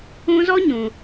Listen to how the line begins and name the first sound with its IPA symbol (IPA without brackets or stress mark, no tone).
ũ